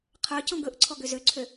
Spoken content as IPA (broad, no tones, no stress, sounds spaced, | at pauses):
qʰ œ c ɔ̃ ɡ ɵ ʔ ǀʰ ɔ ɡ ø z ø ǀʰ ø